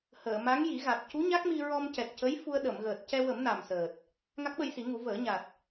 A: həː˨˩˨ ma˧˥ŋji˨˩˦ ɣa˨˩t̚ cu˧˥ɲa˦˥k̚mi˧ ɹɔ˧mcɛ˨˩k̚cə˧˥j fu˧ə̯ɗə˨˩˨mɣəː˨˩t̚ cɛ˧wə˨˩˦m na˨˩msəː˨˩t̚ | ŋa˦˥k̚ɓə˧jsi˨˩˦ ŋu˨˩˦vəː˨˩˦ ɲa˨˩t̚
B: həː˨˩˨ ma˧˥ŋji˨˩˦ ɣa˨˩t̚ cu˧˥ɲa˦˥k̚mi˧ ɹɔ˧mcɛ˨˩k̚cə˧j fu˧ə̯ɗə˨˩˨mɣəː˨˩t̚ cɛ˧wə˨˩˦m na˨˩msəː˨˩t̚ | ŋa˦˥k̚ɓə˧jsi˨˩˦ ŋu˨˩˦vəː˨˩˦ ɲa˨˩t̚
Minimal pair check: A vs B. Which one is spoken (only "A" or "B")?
A